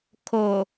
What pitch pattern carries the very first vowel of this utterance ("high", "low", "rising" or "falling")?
low